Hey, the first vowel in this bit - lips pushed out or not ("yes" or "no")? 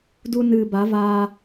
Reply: yes